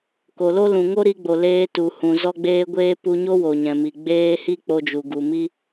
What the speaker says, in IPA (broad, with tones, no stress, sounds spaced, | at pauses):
k o˨ l o˦ l ũ˨ ŋ o˦ ɾ i˧ ɡ͡b o˨ l eː˧ t u˨ h ũ˨ z ɔ˦ ɡ͡b eː˦ ɡʷ eː˦ p u˧ ɲ o˦ w o˨ ɲ ɛ̃˨ m i˨ ɡ͡b eː˦ h i˦ k͡p o˧ d͡ʒ u˨ ɡ u˨ m i˦